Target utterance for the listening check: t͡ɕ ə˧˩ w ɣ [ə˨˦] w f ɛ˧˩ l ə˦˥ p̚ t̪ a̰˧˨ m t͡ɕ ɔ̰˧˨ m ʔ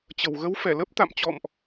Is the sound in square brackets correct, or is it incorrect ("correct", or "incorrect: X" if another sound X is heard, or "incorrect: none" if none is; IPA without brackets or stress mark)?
correct